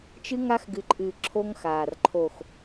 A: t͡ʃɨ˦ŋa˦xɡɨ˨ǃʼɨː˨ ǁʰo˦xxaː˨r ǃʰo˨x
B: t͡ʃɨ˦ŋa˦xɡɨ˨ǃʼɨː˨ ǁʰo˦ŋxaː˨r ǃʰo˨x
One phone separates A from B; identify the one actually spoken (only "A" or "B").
B